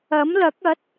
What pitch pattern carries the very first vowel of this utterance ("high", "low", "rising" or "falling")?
rising